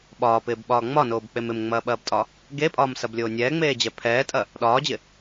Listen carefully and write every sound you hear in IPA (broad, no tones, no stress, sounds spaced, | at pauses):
ɓ ɒː p ɪː b ɓ ɒː ŋ͡m ɒ n oː b k͡p e m ɪ m ŋ͡m ɐː ɓ ɐː b tʼ ɒ | ɡ e pʼ ɒː m s ɐ b lʲ oː nʲ ɛː ŋ͡m eː d͡ʑ ɛ pʰ ɛː tʼ ɐ | ɗ ɒː d͡ʑ ɪ